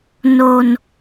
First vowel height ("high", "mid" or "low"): mid